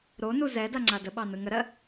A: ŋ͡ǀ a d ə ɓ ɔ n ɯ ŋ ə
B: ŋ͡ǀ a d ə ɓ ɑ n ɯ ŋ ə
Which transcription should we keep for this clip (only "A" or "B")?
B